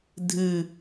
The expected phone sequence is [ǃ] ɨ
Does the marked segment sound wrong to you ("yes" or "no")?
yes